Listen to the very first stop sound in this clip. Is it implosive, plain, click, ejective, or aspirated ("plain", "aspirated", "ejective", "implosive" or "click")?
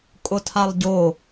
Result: ejective